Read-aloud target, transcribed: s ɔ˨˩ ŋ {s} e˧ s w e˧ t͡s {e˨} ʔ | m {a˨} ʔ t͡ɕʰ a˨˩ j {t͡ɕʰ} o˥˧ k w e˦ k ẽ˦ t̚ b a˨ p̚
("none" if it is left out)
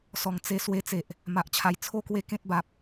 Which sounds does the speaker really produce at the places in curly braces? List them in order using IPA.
t͡s, e˨, a˨, t͡sʰ

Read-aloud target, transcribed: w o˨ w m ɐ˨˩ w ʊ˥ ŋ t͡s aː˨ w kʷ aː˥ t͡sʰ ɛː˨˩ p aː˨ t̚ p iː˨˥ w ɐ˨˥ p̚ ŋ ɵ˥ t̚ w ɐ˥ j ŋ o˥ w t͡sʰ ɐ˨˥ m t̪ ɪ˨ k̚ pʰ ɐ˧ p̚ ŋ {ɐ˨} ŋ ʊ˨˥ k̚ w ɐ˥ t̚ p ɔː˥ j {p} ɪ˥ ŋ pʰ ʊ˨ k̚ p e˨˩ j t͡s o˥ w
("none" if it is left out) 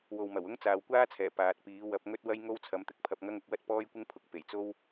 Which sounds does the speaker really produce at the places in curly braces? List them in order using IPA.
ɐ˥, kʷ

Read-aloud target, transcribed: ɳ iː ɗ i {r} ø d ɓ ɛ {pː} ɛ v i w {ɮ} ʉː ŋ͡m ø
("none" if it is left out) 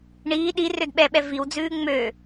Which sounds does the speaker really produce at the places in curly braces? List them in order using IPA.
r, ɓ, d͡z

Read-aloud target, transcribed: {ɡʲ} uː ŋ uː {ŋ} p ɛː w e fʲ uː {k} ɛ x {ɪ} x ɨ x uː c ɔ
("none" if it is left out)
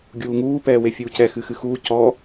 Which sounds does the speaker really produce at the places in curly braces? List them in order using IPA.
ɡʲ, none, c, ɨ

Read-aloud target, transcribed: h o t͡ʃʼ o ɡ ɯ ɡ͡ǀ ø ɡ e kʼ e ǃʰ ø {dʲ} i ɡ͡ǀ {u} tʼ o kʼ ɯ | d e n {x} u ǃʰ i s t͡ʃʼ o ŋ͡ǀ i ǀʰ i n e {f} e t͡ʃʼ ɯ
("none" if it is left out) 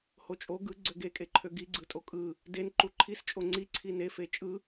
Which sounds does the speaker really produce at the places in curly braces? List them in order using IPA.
ɡ, ɯ, ǃ, f

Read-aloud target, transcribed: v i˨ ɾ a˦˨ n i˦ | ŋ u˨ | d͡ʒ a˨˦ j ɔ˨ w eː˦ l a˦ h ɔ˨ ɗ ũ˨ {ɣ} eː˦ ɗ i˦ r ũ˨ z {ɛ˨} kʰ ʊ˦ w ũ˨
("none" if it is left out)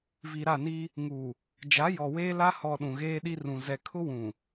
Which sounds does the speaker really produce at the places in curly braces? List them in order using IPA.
ɣ, ɛ˨

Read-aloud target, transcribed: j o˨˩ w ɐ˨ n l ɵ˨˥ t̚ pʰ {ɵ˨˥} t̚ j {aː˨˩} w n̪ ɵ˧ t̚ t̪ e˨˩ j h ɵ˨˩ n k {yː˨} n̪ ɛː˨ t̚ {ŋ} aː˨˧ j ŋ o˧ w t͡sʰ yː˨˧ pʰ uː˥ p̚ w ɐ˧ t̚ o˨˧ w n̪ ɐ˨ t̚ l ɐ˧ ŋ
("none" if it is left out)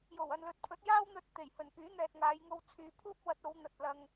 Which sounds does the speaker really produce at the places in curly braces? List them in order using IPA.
ɵ˨˥, aː˥, yː˨˥, ŋ

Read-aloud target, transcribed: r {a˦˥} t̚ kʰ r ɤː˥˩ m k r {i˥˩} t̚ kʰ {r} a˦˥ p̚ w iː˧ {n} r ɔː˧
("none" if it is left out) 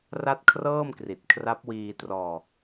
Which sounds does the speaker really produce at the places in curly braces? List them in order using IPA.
a˥˩, i˨˩, r, t

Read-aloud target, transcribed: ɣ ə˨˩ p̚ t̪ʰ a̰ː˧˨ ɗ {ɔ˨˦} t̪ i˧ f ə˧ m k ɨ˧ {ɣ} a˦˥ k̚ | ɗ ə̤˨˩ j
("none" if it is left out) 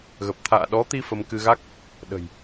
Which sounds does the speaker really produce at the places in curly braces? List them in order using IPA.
ɔ˨˦, ɣ

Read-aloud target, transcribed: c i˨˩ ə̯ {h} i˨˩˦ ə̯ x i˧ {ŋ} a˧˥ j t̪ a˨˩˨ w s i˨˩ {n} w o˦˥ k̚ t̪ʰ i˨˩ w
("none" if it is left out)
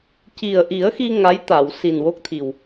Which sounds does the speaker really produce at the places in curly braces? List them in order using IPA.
ʔ, ŋ, n

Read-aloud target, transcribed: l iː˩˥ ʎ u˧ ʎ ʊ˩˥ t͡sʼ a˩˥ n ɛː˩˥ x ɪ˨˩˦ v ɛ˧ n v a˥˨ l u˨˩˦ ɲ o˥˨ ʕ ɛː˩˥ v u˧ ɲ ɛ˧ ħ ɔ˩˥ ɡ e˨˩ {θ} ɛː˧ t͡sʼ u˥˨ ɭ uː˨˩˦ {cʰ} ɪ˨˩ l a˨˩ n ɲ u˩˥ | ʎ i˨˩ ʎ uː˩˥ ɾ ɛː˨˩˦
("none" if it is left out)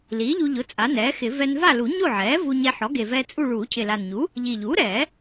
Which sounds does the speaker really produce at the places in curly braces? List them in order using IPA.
v, cʰ

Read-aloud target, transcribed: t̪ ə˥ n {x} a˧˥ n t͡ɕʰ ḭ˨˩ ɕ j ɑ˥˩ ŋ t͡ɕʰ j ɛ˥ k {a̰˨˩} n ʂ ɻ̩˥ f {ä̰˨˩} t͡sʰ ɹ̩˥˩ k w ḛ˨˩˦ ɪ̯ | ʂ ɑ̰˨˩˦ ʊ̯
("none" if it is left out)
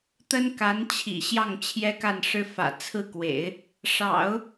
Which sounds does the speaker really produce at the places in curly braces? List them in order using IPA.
k, a˥˩, ä̰˨˩

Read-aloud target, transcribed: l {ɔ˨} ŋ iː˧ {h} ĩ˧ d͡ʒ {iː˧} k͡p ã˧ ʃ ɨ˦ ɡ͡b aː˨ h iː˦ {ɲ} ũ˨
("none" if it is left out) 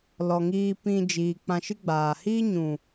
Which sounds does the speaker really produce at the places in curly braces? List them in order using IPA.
ɔ˨, p, iː˨, ɲ

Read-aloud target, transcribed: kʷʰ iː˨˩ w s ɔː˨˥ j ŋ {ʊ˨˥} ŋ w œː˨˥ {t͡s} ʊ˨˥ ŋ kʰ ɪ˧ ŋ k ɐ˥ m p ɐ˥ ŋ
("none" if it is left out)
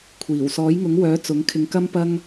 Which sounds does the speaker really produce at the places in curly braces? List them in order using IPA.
ʊ˨˥, t͡s

